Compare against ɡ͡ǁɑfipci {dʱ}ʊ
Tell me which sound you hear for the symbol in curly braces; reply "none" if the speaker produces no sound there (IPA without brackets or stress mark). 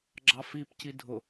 dʱ